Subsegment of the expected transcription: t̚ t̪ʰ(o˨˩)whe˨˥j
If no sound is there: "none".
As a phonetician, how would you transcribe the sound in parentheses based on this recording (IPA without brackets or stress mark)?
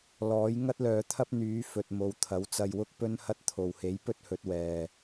o˨˩